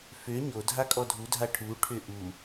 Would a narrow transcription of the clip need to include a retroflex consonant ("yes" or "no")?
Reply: yes